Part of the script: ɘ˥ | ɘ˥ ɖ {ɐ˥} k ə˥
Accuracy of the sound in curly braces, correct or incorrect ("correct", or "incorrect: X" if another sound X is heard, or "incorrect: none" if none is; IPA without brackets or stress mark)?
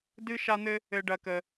correct